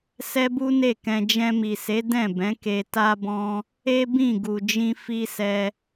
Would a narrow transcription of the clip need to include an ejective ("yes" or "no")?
no